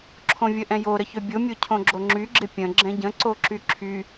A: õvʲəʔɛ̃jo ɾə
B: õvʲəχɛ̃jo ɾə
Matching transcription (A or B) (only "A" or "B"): A